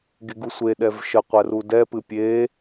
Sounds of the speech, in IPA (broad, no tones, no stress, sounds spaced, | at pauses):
ɡ e ɡ u sʷ e ɗ ɛ v ʃ ə qʷ ɛ r u d ɛ p ɨ pʲ e